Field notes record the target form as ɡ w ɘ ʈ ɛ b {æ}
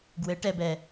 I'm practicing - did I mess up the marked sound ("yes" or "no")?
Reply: yes